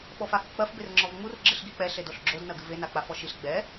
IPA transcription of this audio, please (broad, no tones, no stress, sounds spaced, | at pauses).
ɓ ɔ f a h ɨ k͡p ɐ f b e r ŋ͡ǁ ɔ v ŋ͡m u r ɡ͡ǁ ɨ ɬ ɡ i k͡p ɛ ɬ e d o ɬ ɡ͡ǁ o d n ɐ ɡ ɨ v e n a k͡p a f ɔ ʃ i ɬ ɡ͡b ɛ